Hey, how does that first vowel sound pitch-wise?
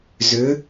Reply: rising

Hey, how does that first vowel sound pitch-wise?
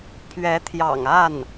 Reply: rising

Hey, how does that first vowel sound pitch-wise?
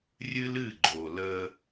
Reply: high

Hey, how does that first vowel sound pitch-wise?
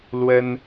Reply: high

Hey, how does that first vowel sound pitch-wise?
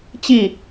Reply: falling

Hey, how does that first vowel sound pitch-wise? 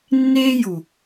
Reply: high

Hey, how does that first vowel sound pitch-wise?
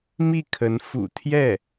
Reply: falling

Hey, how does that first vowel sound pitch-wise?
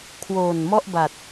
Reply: low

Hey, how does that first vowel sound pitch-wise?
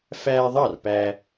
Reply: high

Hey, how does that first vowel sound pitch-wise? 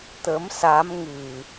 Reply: rising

